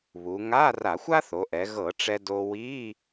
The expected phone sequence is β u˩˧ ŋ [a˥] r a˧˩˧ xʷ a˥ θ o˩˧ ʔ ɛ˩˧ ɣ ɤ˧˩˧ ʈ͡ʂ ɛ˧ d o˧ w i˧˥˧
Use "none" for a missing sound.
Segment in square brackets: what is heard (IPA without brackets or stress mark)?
a˧˥˧